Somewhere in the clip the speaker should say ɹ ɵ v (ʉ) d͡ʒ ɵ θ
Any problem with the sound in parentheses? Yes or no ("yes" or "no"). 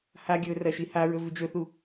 no